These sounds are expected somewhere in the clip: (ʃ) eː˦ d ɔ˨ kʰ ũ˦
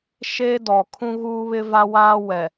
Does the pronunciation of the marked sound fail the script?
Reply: no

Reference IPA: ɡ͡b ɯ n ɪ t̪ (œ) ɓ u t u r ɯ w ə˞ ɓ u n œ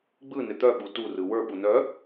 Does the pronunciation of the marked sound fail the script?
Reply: no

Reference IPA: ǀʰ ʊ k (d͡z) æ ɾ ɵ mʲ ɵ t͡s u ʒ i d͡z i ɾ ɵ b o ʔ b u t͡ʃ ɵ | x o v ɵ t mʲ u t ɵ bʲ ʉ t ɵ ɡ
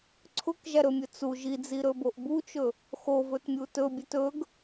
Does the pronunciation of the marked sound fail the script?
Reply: yes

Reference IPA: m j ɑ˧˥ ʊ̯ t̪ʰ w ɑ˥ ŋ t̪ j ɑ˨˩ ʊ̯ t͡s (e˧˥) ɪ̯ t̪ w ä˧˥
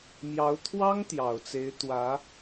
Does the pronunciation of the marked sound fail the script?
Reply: no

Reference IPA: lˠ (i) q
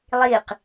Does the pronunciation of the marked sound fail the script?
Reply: no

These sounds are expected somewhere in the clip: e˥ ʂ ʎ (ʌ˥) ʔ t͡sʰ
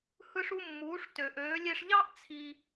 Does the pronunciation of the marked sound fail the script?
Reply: yes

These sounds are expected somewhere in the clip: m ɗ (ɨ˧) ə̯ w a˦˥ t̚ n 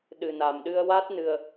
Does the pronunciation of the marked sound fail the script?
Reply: no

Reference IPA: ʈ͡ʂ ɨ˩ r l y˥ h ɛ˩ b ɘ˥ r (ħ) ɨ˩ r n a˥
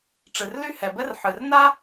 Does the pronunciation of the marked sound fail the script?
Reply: no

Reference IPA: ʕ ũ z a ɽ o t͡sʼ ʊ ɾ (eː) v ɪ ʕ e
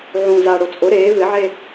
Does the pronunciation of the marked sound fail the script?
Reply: no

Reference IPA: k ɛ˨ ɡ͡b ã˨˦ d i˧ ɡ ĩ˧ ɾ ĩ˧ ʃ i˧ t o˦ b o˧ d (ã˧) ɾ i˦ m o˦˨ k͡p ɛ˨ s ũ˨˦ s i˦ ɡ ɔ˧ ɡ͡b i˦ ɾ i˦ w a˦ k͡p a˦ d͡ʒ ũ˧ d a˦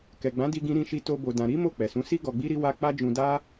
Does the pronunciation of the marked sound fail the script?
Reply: no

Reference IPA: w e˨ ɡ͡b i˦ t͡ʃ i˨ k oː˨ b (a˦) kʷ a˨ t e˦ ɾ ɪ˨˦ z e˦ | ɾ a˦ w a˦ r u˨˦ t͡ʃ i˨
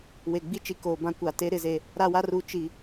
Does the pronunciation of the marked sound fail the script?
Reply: yes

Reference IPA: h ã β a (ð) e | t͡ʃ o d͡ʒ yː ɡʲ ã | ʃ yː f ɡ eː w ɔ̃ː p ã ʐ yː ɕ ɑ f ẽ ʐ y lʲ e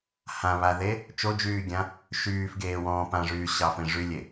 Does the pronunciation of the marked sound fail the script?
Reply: no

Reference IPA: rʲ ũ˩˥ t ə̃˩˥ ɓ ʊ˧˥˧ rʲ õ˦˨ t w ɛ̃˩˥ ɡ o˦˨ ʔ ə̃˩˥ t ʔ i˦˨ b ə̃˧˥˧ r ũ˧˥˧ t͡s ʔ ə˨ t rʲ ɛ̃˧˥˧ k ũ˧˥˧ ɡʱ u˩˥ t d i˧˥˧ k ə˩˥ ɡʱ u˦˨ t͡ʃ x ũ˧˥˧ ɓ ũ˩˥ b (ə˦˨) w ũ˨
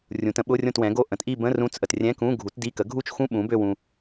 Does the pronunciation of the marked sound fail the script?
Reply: yes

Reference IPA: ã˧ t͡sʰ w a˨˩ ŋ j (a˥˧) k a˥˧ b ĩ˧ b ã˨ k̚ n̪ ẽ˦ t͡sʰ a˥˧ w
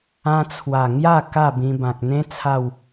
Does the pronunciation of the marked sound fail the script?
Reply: no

